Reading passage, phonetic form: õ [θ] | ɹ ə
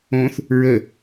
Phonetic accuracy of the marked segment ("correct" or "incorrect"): correct